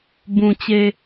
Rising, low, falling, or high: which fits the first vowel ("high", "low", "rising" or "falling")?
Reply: low